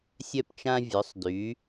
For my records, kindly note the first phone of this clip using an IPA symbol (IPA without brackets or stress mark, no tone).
sʲ